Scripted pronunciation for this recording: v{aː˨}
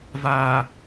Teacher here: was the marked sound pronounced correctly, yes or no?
yes